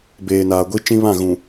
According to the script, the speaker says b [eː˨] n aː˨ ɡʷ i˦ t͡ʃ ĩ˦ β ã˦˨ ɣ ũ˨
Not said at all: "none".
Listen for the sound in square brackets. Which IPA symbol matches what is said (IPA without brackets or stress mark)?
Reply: eː˨